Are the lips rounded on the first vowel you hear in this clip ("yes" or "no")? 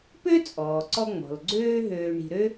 yes